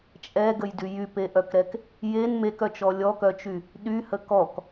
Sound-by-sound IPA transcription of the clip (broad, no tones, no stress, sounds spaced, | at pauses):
t͡ʃʼ ɛ ɡ ə j d y j y p e ʔ œ k ɾ ɛ k | j e n m e k œ t͡ʃ ɔ lʲ ɔ k œ t͡ʃ y | ɗ y h ə k ɔ k